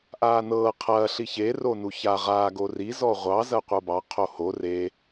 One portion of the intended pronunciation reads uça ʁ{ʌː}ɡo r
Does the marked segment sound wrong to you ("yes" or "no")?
yes